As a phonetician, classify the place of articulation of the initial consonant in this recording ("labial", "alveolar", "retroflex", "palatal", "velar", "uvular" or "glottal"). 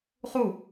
uvular